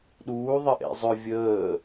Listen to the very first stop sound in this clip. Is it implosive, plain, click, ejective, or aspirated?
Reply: implosive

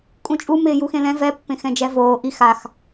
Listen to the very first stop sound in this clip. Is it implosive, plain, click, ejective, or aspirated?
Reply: ejective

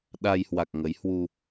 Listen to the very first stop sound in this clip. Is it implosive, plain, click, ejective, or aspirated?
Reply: implosive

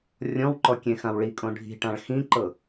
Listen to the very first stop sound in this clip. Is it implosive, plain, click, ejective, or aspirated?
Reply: click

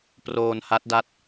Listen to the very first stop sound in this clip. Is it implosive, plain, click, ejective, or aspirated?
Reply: plain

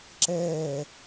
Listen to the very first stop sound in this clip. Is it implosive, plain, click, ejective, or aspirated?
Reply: click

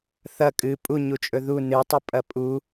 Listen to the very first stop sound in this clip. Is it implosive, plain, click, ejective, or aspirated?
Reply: ejective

